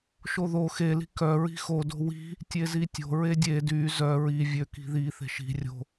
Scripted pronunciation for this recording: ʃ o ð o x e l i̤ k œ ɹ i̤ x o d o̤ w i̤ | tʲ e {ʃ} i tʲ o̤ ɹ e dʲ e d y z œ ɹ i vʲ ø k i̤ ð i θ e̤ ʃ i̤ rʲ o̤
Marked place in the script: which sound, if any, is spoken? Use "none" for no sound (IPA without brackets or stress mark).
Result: z